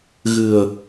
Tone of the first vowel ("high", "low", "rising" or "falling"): low